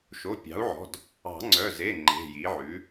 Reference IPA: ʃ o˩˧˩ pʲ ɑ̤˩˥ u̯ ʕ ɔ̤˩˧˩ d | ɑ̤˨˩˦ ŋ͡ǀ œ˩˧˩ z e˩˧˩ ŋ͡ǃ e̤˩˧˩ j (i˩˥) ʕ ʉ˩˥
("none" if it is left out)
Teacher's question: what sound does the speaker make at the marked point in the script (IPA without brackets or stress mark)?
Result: i˩˥